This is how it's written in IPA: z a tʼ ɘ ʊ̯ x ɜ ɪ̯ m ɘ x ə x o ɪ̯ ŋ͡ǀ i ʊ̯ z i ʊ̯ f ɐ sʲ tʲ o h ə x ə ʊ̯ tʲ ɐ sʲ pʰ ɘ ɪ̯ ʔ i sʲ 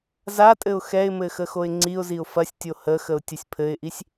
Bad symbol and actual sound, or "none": ɜ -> ɛ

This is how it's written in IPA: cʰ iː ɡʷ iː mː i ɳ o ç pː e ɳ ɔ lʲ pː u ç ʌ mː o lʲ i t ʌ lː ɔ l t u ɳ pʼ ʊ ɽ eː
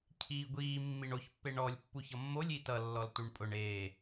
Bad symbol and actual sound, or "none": ɽ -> ɳ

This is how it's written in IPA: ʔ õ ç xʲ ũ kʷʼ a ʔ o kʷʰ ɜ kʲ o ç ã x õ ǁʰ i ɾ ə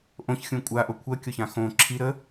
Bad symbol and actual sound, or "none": none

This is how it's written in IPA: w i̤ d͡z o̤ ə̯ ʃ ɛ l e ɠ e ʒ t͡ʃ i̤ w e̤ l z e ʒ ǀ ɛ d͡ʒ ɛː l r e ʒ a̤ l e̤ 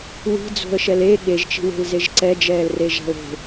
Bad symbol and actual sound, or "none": none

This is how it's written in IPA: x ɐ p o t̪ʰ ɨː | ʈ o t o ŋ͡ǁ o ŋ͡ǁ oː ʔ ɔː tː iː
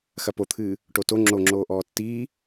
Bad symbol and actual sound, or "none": none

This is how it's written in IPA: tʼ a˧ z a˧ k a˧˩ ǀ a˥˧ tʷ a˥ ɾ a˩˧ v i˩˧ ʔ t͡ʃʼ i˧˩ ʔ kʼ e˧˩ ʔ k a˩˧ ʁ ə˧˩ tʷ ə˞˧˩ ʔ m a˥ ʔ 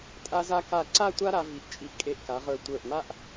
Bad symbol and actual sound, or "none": ə˧˩ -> ə˞˧˩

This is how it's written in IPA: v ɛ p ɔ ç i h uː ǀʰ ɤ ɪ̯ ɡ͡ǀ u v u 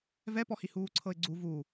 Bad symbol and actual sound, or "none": ç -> h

